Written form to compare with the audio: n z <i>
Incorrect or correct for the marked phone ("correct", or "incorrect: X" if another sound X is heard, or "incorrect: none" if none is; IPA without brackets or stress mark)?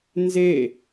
incorrect: e